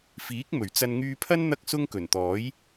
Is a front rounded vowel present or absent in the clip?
present